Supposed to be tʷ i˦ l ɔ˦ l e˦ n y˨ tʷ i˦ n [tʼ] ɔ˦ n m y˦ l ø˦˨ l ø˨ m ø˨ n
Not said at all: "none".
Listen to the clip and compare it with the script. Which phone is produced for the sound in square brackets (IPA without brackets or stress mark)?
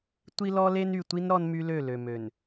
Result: ɾ